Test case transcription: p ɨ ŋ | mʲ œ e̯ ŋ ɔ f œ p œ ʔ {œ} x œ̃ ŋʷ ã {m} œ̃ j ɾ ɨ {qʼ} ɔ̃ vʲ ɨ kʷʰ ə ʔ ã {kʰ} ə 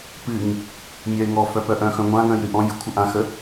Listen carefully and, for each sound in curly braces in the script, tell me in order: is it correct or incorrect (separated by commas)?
incorrect, incorrect, incorrect, incorrect